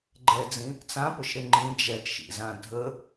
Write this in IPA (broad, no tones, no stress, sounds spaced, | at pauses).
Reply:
ɡ͡ǃ ɛ d͡z ĩ | t͡s ã p ʊ ʃ ɾ ɪ ŋ͡ǃ ĩ d͡ʒ ɛ t ʃ ḭ z ã dʱ ə